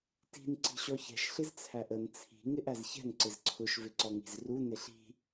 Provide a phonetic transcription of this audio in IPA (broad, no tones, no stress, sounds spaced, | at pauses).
t i̤ n ǀ i̤ ɕ ɔ ç ɛ̤ ʃ ɬ ɪ z t͡sʰ æ ʔ ə n t͡sʰ i̤ ŋ ɪ ʔ æ z ç ɛ̤ n ǀ ɪ z ǀʰ ʊ ʃ v ɪ ǀ ɔ ŋ i̤ z r u n ɪ ɬ i̤